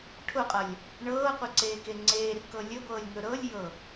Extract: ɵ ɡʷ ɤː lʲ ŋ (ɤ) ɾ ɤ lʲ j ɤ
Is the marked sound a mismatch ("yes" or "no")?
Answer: yes